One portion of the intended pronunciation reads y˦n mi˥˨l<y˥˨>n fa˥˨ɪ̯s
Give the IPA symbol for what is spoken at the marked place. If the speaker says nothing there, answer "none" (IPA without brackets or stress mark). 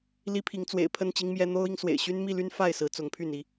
y˦